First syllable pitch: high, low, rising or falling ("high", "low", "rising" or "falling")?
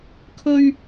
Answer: high